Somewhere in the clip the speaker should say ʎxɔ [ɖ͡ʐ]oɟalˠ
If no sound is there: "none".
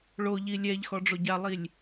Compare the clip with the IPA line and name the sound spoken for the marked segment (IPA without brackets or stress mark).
ɖ͡ʐ